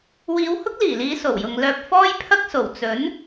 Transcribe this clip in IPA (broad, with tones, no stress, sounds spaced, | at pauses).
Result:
w iː˨˧ w h ʊ˥ k̚ l iː˨˩ l iː˨˧ s o˨˩ w j ʊ˨ ŋ l œː˧ p̚ f ɔː˥ j pʰ ɐ˥ k̚ s o˨˩ w t͡s ɵ˨˥ n